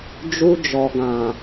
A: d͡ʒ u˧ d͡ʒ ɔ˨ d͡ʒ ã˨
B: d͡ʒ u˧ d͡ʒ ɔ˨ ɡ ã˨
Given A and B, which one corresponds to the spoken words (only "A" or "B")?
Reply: B